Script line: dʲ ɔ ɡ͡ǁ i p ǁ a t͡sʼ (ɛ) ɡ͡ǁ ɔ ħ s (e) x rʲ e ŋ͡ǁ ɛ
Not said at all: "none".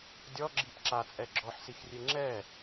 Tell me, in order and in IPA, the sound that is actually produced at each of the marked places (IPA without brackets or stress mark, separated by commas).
ɛ, i